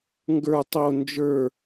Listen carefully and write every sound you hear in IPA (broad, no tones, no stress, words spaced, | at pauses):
ŋɡə˞ tˤo nd͡ʒə˞